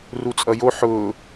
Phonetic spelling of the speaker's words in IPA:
r u t͡sʼ ʌ j o ħ ʊː

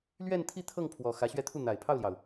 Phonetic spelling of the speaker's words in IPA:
l ɥ ɛ˥˧ n t̪ʰ i˥˧ t̪ʰ ɤ˥˩ ŋ pʰ w ɔ˨˩ x ä˧˥ ɕ ɥ ɛ˥˧ t̪ʰ u˥˩ n̪ a˨˩ ɪ̯ pʰ ɑ˥˩ ʊ̯ l j ɑ˩ ʊ̯

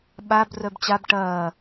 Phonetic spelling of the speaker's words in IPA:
ɓ a b r œ b t͡ɕ a b ʈ ɐː

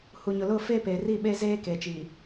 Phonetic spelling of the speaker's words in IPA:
h u˨ ɲ ʊ˨ l ʊ˦˨ f e˦ p e˨ r i˦˨ ɓ e˦ z eː˦ k e˨ t͡ʃ i˨

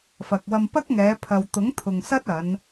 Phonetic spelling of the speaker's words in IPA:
f ɐ˨ k̚ w ɐ˧ m p ɐ˥ k̚ ŋ ɛː˨˧ pʰ ɐ˨ w t̪ ʊ˨˥ ŋ t̪ʰ ʊ˨ ŋ s ɐ˥ t̚ ɐ˨˧ n

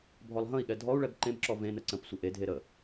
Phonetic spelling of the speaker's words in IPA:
bʱ ɔ lˠ ɦ ə̃ i̯ ɠ ɛ dʱ ɔ u̯ ɭ ɛ b ǃ ẽ b ǁ ɔ v ẽ n ə ǀ ə̃ p sʷ ə ʔ e dʱ e ɾ ə

